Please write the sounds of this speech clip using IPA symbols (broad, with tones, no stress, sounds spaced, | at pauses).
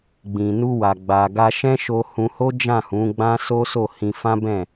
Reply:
ɡ͡b ĩ˨ n u˧ w a˨ ɡ͡b a˨ ɡ a˧ ʃ ɛ̃˦ ʃ o˧ h ũ˧ h o˦ d͡ʒ ã˦˨ h ũ˨˦ ɡ͡b ã˦ s o˦ s o˦˨ h ĩ˧ f ã˦ b ɛ̃˦˨